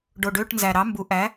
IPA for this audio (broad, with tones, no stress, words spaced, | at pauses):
ɖo˨˩ɖø˧˥˧ʈnzæ˨˩ ɾɑ˩˥ mbu˩˥ ʔæ˩˥